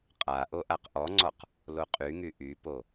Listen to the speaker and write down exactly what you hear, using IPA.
qʼa ʔoʔaqʔɔŋ͡ǀɔq | loqʼyŋy ʔypo

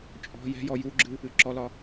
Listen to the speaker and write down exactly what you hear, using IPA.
t͡ʃʼɔ̤ jɛ̤jɔ juɡ͡ǁɨ | ɨǁɔlɒ

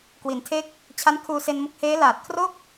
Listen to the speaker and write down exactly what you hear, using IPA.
kwi˩˦ntʰe˦˥k̚ | t͡ɕʰa˦˥nkʰuː˧se˧nmo˦˥k̚ heː˦˥laː˨˩t̚kʰro˥˩k̚

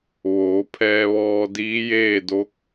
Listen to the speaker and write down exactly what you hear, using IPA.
ʋoː˩˧ pʰɛː˧ʋɔː˧ diː˧˥jeː˥˨do˧˥k̚

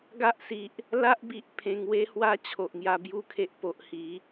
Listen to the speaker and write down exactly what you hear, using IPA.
ɡa˦ʔsi˨ʔ | la˦ʔbi˨ʔ pʰẽ˧ŋwe˦hwa˦ t͡ɕʰo˨ʔŋja˧bju˥˧kʰe˦ʔ po˨ʔhi˨˦

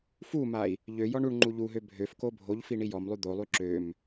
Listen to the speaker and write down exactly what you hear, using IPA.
fumai̯ | ʎøjɔɳ uɳŋ͡ǃu ʎuɦø bʱøfko bʱoʎfi ɳijɔmlˠy d̪olˠy ǁøm

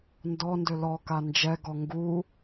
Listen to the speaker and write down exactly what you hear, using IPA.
ndɔndø lɔka nd͡ʒɛɡɔ ŋɡu

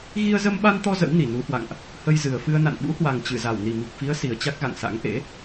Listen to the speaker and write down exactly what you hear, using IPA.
ɣi˧ə̯zə˧mɓa˧nt̪ɔ˧ zə̰˧˥wni˧˩nu˨˦hwa̰˧˨ŋʔ | hə˧jzɨ˨˩ə̯fɨ˧ə̯ na̰˧˨nɓṵ˧˥hwa˨˩ŋ t͡ɕɨ˧˩za˧˩w ni˨˩mi˨˩k̚fi˨˦ə̯ si˨˩ə̯t͡ɕa˦˥k̚ɣa̰˧˨ŋsa̰˧˥ŋ ʔḛ˧˥

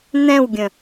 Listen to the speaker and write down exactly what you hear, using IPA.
n̪ɛ̃wɡʲə̃

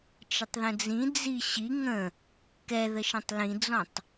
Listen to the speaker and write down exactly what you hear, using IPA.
t͡ʃətˤðə̃d͡zĩ d͡ziɕi ŋə̃ | kɛðəʃə̃tˤ lĩd͡zɔ̃tˤ

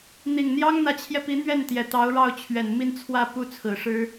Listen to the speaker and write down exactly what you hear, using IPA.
n̪i˨˩ŋn̪jɑ˥ŋ n̪ä˧˥t͡ɕʰjɛ˧pi˧˥ n̪ɥɛ˥˩nt̪jɛ˨˩ t̪ɑ˧˥ʊ̯ɻɑ˥˩ʊ̯t͡ɕʰɥɛ˨˩n mi˥˧nt͡sʰwä˥˧ pu˥˩t͡sʰɹ̩˨˩ ʂɻ̩˥

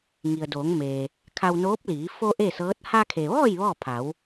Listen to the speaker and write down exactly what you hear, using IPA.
ŋi˩ə̯doː˩˧ŋmeː˩ | kʰa˧wnoː˧˥p̚liː˩˧ fo˧ ʔe˥˨sɤː˧˥t̚ ha˧kʰe˩ʋɔː˥˨j ʋɔː˥˨ pʰa˩˧w

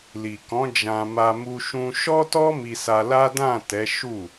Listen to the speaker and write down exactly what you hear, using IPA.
li˨kɔ̃˨˦ d͡ʒã˧ma˧ mu˧ʃũ˧ ʃɔ˦tɔ˦ mi˧sa˧la˦ dã˦˨tɛ˨˦ ʃu˦˨

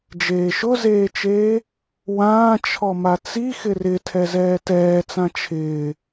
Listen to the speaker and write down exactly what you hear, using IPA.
d͡ʒeːʃʊzeːt͡ʃeː | wãː t͡ʃʰɔmat͡si xɪrɪ tʰɛzɛːtɛːt͡sã t͡ʃʰɪː

